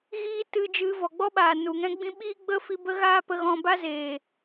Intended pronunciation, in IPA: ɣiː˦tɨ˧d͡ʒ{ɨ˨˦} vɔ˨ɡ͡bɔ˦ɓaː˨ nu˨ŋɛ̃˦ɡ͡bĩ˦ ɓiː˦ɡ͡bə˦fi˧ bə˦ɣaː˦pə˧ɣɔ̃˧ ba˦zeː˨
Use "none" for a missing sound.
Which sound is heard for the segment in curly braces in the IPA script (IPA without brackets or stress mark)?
ɨ˨˦